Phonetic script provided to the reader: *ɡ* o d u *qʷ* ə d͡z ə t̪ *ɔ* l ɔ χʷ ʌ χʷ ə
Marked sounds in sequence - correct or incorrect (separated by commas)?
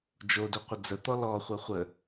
incorrect, correct, correct